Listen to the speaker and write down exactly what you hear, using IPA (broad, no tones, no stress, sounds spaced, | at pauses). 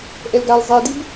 ʔ ɛ l ɡ a l zˤ ɛ d i b